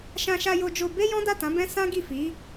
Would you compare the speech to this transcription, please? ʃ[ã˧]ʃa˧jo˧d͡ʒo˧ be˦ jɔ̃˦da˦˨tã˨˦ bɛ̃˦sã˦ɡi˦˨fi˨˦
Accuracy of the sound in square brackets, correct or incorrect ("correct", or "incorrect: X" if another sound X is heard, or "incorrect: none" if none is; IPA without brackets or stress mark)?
correct